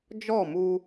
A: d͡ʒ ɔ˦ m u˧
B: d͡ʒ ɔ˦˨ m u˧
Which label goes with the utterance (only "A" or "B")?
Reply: B